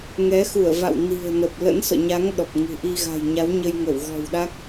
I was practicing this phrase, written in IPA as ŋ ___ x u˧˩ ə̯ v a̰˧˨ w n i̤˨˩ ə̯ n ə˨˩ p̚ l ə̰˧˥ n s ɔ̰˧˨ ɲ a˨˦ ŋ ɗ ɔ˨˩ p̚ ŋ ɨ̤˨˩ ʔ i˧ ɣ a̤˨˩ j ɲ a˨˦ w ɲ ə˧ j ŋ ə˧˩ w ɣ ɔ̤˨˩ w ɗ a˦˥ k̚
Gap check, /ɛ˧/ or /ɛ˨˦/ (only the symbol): ɛ˨˦